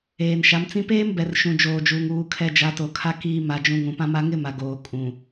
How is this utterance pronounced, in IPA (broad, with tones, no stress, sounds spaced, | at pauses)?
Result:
eː˨ n ʃ a˨˦ m t͡s ĩ˦ p eː˦ m b ɛ˨ r ʃ ũ˨ d͡ʒ oː˨ d͡ʒ uː˨ ŋ uː˨ kʰ ɛ˨ d͡ʒ a˨˦ t o˨ kʰ a˦ k iː˦ m a˨ d͡ʒ ũ˨ ŋ ũ˨ p ã˦ m a˦ ŋ ɪ˦ m a˨ ɡ oː˨ kʼ ũ˨